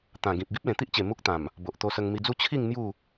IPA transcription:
t̪ ã˨˩ ɡ ĩ˨ p̚ ɡ i˦ p̚ l ẽ˨˩ t̪ i˦ ʔ t͡ɕ e˨˩ m u˦ k̚ t̪ ã˨˩ m | b o˨ ʔ t̪ o˧ s ə˧ ŋ m i˧ d͡z u˥˧ t͡ɕʰ i˥˧ ŋ n̪ j u˥˧

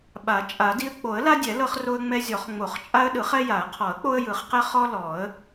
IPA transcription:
ɓ a˨˩˦ t͡ʃʼ a˨˩˦ d i˦ ə̯ k͡p o˨˩˦ ə̯ l a˦ dʲ ɛ˨˩˦ l ɤ˦ χ r o˦ ə̯ ŋ͡m ɛ˦ zʲ ɔ˨˩˦ χ ŋ͡m o˨˩˦ χ t͡ʃʼ a˦ ə̯ ɗ ɯ˨˩˦ χ ɛ˦ j a˨˩˦ ə̯ qʰ ɔ˨˩˦ ə̯ k͡p o˦ ə̯ j ɯ˨˩˦ χ q ɛ˦ χ ɔ˦ l ɔ˨˩˦ ə̯

